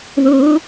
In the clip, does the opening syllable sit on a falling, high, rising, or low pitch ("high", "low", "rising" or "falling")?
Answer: rising